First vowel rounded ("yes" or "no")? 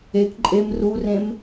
no